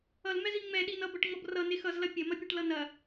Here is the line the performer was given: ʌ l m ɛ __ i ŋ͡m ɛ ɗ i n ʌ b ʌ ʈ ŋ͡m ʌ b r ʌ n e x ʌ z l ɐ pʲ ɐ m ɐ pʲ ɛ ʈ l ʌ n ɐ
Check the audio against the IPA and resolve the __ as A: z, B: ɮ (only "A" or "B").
A